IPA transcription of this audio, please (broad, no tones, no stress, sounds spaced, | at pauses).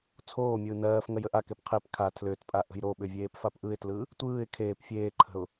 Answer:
t͡sʰ oː mʲ ɯː n ɜː f ŋ ɜ j ə ʔ a k e p qʰ e p kʰ a tʰ l ʏː t pʼ a ʔ ə̤ j ɾ o ɓ ʏ vʲ eː p f a p ʔ ɯ ɪ̯ t l ɯ | tʷ ɯː ɪ̯ kʰ eː p fʲ eː ǃʰ ə̤ ʊ̯